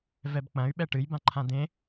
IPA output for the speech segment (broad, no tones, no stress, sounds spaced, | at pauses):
v ɛ b k͡p ɐ̃ y̯ ɓ ɛ ʈ ɨ j b ã ǃʰ ã d̪ ẽ